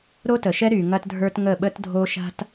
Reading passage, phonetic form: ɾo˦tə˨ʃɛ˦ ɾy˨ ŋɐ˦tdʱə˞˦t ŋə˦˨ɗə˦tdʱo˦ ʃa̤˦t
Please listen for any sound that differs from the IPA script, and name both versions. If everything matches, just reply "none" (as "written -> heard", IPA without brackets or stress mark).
ɗ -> ɓ